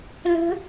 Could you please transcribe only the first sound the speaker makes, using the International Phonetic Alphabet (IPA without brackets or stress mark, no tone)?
l